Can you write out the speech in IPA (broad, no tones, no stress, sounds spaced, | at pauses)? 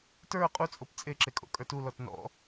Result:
t ə˞ qʼ u t͡sʼ o p t͡sʼ e ǁ e kʼ o̰ kʼ ə˞ t u l ɔ t n ɔ̰